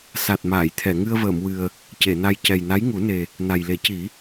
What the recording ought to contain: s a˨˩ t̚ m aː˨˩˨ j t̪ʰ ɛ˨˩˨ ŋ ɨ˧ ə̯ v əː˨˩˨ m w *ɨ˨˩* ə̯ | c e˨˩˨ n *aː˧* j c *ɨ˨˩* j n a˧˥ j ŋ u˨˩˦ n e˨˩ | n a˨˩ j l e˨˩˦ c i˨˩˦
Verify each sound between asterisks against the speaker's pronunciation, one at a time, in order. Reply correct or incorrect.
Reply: correct, incorrect, incorrect

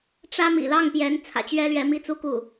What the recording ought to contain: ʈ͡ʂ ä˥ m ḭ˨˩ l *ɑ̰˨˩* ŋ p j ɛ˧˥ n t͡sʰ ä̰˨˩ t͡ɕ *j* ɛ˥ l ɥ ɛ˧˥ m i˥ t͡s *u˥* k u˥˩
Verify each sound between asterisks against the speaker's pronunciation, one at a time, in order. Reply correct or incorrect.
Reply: incorrect, incorrect, correct

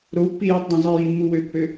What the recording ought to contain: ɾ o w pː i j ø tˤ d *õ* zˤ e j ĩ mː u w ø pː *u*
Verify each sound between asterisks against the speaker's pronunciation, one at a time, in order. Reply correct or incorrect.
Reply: correct, incorrect

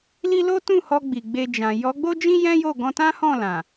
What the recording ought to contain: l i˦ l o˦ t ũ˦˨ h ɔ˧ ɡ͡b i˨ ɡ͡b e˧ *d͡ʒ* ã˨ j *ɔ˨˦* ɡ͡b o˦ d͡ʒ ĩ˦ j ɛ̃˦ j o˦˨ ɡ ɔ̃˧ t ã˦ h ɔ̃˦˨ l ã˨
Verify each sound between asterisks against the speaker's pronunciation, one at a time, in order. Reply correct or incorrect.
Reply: correct, correct

